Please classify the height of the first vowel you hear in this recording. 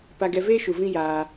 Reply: low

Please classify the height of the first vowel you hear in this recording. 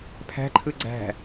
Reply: low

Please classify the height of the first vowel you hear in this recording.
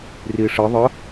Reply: high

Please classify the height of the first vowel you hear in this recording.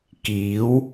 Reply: high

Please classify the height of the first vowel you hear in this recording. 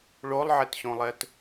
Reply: mid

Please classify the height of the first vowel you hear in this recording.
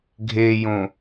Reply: mid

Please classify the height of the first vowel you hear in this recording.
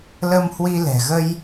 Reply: mid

